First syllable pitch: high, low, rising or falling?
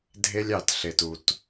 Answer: high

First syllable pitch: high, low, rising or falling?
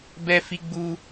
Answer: high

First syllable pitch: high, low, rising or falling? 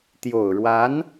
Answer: low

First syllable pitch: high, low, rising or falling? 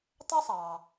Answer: high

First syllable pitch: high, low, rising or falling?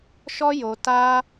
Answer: high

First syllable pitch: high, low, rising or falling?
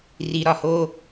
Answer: low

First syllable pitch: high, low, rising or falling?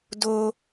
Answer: low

